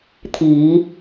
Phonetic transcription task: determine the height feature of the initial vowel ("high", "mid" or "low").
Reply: high